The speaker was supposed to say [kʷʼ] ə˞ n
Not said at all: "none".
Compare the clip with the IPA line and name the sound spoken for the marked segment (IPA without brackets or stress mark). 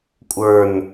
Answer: kʷʼ